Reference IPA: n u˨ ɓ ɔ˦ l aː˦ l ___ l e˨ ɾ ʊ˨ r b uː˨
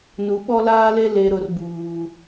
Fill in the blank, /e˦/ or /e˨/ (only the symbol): e˦